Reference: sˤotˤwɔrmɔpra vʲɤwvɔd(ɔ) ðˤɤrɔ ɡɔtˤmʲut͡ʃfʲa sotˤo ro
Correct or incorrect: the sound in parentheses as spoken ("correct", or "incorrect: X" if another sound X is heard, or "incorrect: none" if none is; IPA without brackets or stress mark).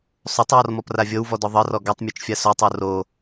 correct